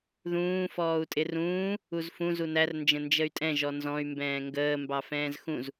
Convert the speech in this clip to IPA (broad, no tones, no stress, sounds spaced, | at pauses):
ð ũː f ɔː u̯ tʼ ɪ r ũː | u z f ũ z u n æ r n d͡ʒ ə̃ n d͡ʒ ə y̯ tʼ ɛ̃ ʒ ɔ n z ɔ̃ y̯ m b ɛ̃ː ŋ ɡ əː m b ɑ f ɛ̃ː z x ũ z